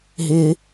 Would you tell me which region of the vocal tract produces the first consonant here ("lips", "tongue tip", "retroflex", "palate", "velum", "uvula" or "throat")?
throat